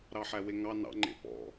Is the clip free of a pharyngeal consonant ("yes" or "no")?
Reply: no